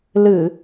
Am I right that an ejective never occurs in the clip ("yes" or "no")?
yes